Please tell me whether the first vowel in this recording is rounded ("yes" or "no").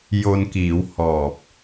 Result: yes